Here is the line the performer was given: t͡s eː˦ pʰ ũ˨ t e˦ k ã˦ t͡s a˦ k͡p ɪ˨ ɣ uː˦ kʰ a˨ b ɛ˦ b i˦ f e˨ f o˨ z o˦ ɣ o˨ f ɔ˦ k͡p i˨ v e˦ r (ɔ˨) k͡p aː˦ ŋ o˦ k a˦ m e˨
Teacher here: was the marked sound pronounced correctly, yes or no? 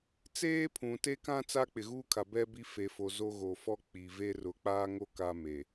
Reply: no